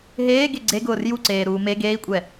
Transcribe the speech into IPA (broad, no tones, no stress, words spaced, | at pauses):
ɦeːɡe ɡ͡ǀeɡʊːr juǀeːɾuː me ɡeːi̯kʷʼɛ